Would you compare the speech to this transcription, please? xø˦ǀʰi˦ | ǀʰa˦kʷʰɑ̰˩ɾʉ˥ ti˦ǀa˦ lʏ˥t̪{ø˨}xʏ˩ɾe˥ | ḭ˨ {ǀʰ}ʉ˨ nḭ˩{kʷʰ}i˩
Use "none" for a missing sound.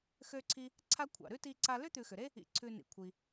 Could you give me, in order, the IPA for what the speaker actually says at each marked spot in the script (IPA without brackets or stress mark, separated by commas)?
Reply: ʉ˨, ǀʰ, kʷʰ